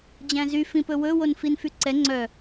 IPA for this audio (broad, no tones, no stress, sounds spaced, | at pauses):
d͡ʑ æ̃ z y f ĩ p ɵ w ɵ w o n f i n f y ǀ ɛ ŋ͡ǀ œ